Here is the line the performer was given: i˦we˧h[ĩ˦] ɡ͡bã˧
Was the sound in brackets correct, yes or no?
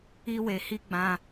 no